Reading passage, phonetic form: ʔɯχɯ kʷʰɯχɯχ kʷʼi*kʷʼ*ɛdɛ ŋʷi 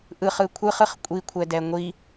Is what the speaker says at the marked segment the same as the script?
no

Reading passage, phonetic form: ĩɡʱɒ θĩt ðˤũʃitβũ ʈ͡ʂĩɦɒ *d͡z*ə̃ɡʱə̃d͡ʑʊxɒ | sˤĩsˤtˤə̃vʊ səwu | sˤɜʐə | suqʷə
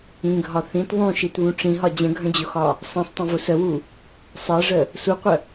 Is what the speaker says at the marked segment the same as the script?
no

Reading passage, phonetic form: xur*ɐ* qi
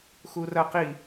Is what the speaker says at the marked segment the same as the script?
yes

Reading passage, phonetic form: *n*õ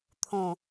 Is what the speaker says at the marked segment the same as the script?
no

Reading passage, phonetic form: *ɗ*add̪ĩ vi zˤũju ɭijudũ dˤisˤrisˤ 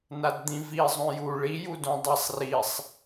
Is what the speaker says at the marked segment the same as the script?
no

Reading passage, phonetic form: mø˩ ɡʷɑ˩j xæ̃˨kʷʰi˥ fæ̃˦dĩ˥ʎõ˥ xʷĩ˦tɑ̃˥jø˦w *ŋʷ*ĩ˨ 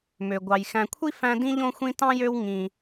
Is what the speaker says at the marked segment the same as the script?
no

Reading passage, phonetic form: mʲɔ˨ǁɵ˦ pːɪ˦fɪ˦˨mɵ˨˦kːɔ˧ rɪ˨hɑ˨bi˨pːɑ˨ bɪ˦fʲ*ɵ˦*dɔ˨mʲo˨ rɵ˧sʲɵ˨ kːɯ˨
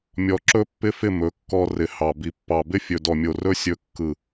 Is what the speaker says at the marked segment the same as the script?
no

